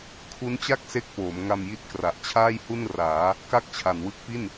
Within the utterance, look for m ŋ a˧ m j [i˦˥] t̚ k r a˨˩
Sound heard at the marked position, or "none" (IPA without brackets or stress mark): i˦˥